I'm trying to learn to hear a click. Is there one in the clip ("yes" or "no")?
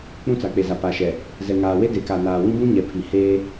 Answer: no